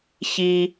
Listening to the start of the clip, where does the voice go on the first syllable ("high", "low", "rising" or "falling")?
high